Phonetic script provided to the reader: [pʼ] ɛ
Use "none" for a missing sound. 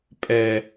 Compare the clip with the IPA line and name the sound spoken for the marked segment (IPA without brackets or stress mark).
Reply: pʼ